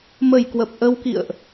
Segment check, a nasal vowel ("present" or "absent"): absent